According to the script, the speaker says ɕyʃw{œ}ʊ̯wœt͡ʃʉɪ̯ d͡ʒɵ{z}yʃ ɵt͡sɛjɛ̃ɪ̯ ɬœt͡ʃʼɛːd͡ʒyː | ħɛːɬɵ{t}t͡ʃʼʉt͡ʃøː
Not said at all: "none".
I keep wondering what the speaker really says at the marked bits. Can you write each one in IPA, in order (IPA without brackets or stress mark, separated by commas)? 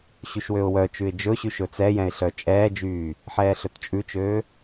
ø, ɕ, t